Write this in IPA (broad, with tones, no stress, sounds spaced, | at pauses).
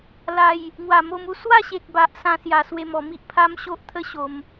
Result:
l a˨˩ j | ŋ w a˨˩ m o˧ m u˧ s w a˥˧ ɕ e˨ k̚ b a˨ ʔ s ã˧ s j a˧ s w e˧ m ɔ˨˩ m i˦ ʔ pʰ a˦ m ɕ o˦ ʔ t̪ʰ ə˦ ɕ o˧ m